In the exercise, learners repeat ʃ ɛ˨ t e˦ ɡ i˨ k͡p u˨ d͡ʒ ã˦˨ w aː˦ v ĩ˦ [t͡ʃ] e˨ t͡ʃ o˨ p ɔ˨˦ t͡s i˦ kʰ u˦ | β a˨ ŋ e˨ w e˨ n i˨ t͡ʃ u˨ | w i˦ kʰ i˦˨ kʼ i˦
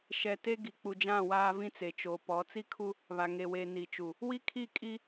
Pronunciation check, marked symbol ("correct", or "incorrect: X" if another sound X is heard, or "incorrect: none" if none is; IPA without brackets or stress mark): incorrect: t͡s